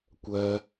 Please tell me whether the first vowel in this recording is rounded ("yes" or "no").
no